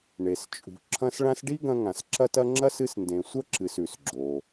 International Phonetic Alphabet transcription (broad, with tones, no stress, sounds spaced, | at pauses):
ɳ e˨ s t͡ʃʼ ṳ˨ ǁʰ ɐ̃˦ s ɭ ã˦ s ɖ i˥ ɡ ɐ̃˦ ŋ ã˨ s ǁ ɐ˥ t ɐ˥ ŋ͡ǁ ɐ˥ s ɨ˦ s n d ẽ˨ sʷ ɐ˥ ǁ ɨ˨ s ʉ˩ s ɡ͡ǁ o˩